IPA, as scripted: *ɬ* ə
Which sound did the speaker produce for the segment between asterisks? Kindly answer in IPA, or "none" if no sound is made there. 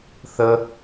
θ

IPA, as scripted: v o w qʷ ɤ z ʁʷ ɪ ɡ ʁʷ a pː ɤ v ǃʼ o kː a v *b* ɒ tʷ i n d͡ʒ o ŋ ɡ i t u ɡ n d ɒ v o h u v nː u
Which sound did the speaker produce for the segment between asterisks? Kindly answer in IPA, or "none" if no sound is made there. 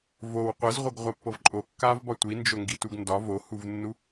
b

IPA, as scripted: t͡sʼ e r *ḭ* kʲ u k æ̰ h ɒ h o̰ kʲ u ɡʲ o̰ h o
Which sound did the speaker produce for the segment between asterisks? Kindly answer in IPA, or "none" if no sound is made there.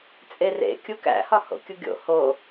ḛ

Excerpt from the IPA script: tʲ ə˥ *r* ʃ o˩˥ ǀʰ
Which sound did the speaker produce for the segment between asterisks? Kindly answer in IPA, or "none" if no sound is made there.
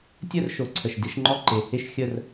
r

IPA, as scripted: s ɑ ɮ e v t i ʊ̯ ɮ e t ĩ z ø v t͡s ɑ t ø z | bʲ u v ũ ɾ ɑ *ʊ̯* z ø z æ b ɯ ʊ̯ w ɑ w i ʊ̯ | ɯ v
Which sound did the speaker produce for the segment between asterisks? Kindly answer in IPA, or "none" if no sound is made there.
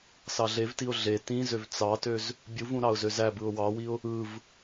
ʊ̯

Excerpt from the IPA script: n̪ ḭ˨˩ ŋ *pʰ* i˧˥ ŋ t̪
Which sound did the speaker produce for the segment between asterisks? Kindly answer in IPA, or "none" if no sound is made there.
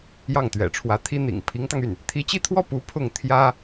pʰ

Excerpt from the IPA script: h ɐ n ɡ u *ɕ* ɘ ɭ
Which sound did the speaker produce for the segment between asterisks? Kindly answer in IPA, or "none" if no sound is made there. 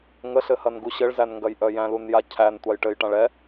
ɕ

